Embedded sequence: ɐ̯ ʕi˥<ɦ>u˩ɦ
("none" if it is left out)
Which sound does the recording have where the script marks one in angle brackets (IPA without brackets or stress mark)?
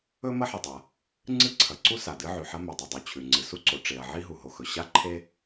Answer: ɦ